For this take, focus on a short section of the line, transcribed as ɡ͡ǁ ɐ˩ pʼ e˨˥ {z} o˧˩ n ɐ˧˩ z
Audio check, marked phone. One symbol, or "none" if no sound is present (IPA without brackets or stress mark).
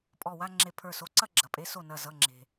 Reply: s